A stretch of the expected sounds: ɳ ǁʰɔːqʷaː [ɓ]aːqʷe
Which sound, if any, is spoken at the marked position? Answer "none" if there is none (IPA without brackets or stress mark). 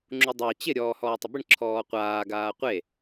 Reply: ɡ